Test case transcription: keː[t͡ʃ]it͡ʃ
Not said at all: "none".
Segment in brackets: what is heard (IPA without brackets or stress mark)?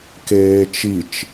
t͡ʃ